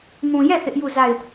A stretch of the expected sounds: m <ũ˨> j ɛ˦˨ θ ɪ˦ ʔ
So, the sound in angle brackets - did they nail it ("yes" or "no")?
yes